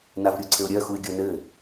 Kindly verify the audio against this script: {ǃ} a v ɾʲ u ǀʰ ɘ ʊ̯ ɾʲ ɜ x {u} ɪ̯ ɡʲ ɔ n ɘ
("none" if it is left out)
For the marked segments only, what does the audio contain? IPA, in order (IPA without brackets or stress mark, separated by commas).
n, u